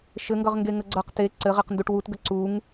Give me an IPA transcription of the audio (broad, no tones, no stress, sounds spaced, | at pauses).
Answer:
ʃ ɘ ŋ ɡ ʌ ʁ ŋ ɡ e ŋ ə ɡ͡ǀ ʌ q t e ǀ ɘ ʁ e q n d u ʈ w u t ɡ ə ǀ u ŋ